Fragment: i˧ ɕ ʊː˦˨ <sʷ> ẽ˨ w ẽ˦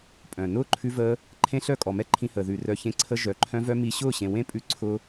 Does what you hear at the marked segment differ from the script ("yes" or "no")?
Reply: yes